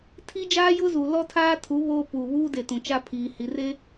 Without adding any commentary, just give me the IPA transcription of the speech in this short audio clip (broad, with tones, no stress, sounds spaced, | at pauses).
tʰ i˦ d͡ʒ aː˦ j ʊ˦ z u˨ l ɔ˦ tʰ aː˦ tʰ u˨˦ β oː˦ p uː˨ β uː˦ d e˨ t ũ˨ t͡ʃ a˦ pʰ iː˨ h i˨ r e˦